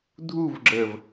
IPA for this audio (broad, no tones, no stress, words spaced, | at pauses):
dʱuvɡ͡ǁəːv